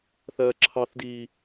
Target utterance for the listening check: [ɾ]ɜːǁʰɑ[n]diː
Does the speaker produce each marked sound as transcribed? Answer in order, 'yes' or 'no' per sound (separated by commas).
no, no